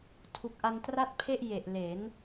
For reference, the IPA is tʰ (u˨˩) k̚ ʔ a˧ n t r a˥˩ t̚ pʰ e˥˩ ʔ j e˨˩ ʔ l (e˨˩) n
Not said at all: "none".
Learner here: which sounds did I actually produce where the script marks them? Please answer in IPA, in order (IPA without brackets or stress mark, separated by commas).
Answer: u˨˩, e˩˦